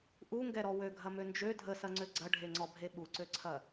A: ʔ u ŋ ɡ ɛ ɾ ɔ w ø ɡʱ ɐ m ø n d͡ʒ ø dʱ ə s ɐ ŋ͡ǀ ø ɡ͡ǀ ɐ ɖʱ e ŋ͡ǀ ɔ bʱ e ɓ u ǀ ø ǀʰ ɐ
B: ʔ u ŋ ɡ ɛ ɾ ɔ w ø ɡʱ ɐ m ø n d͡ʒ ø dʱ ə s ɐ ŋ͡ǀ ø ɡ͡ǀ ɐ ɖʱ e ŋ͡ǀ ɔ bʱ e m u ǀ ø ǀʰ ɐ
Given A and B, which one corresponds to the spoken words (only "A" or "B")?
A